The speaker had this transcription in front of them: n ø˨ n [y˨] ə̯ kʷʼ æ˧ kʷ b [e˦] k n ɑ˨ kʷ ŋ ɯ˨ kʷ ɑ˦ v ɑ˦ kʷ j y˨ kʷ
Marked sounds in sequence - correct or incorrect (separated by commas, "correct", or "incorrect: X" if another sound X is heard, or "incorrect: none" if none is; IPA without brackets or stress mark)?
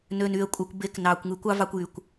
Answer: correct, incorrect: e˨˦